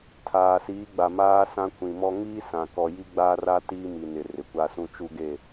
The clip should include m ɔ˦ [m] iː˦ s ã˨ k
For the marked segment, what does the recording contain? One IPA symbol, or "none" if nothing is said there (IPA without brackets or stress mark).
ŋ